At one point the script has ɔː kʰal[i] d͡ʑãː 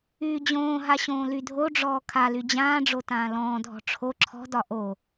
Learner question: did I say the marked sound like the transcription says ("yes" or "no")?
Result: no